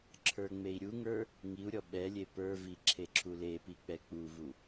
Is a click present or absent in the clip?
present